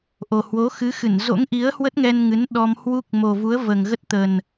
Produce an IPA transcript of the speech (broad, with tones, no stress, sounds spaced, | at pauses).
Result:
ʔ o˨˩ h w o˨˦ x ɨ˨˦ x ɨ˧˩ n z o̰˧˥ ŋ ʔ i˨˦ ə̯ h w ə˦˥ t̚ ŋ ɛ˧ n ŋ ɨ˨˦ n ɗ ɔ˧ m h w u˦˥ k̚ m o˨˩ v u˨˦ ə̯ v əː˨˩ ŋ ɣ ə˦˥ t̚ t̪ ə˨˩ n